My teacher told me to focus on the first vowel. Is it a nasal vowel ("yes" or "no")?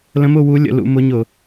yes